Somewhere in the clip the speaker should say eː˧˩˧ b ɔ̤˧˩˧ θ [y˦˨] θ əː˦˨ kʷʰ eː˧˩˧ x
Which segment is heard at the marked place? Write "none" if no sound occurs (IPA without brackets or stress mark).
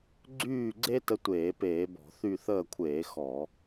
y˦˨